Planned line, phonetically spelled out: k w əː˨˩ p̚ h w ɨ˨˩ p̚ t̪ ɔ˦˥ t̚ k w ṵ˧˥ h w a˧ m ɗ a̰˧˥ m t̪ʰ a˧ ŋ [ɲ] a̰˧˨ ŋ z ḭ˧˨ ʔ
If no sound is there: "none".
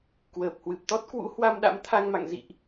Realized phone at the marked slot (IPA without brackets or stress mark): m